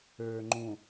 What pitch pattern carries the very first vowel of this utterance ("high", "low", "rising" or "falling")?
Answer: low